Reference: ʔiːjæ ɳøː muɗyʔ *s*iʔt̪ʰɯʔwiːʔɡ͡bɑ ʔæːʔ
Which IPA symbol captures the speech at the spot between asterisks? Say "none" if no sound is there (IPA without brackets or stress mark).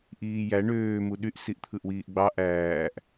s